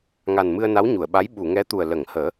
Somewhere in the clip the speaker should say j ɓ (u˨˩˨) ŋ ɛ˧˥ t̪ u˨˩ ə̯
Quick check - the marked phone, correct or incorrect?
correct